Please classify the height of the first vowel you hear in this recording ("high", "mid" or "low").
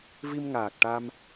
high